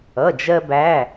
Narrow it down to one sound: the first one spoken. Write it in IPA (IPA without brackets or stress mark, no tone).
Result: ʌ